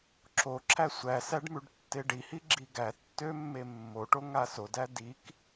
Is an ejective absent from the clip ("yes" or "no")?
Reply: yes